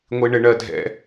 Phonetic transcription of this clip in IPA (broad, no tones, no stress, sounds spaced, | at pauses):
ŋʷ i ɳ ɪ ɳ ɜ dʱ ɛ̰